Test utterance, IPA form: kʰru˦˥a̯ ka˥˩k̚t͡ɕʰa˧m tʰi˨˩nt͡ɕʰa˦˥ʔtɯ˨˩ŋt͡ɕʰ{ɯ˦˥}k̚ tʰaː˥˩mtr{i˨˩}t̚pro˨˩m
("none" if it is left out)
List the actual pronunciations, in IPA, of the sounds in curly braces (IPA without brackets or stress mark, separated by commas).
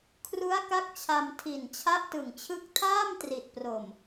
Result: ɯ˦˥, i˨˩